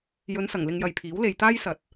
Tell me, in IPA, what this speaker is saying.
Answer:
j ɵ˨˧ n s ɐ˨˩ ŋ l ɪ˧ ŋ j ɐ˨ j pʰ iː˨˥ w l e˨ j t̪ aː˥ j s ɐ˨˥ t̚

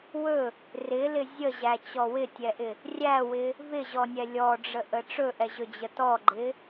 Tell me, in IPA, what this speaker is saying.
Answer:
w ɵ | r ɪ l ɪ zʲ ə ʑ æ t͡ɕ ɔ w ɪ tʲ ɛ ʔ ɪ | rʲ æ w ɪ | v ɪ ʑ ɔ nʲ ɛ lʲ ɔ ɖ͡ʐ ə ʔ ə ʈ͡ʂ ɵ ʔ ɛ ʑ ɵ d͡ʑ ə t ɔ ɡ͡ǃ ɪ

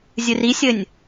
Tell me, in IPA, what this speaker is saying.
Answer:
zʲ ɨ r i sʲ ɘ nʲ

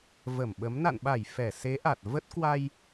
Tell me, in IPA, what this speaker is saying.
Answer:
v ə˧˩ m ɓ ə˨˦ m n a̰˧˨ n ɓ a˧˩ j f ɛ˧˩ s e˨˦ ʔ a˨˩ t̚ v ə˦˥ t̚ k w a˧ j

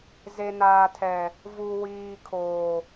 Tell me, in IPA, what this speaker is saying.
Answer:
z e˨ n aː˨ tʰ ɛ˨ | v u˨ w iː˨ kʰ oː˨

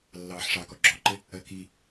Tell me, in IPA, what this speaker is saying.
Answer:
lː ɑː ħ ʂ ɑ k ɔ ɡ͡ǁ ɔ ǃ ɪ | ɜ k i

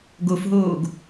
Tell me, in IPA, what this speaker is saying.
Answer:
ɡ o f ɦ oː ɡ

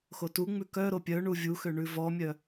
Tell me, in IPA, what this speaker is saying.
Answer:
x o t u ŋ͡m ʉ k œ ɾ o pʲ œ ɳ u vʲ u x ø ɳ ʉ v ɔ mʲ œ

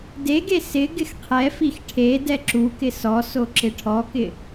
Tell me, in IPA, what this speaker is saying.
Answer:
d e ɡ e s ɪ ɡ ɪ x qʰ ɛ f i x ʈʰ e d ɛ ǁ u k ɪ s ɔ s o ǁ ɪ ʈʰ ɔ k ɪ

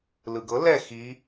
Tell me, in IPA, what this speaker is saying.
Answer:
l ɯ ɡ ɤ l ɛ x i

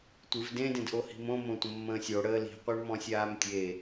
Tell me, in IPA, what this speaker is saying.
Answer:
tʷ ɨ v d ẽ d ẽ d ʔ o h i̤ m õ m õ tʷ ə̃ mː ə̃ː sʲ o ɽ əː l i̤ qʷ ə˞ ɳ m ɔ̃ sʲ aː m tʲ e

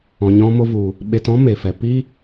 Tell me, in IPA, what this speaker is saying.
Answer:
ɔ̃˨ ɲ ɔ̃˧ m o˧ v u˨ | ɓ e˧ t ɔ̃˦ m e˨ f ɛ˨ p i˦

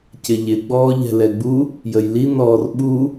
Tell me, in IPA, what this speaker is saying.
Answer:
c ɪ ʎ ɪ ɡ͡b ɔː ʎ ɛ̤ l ɛ ɡ͡b u | j ə j l i n ɔː r ɓ u

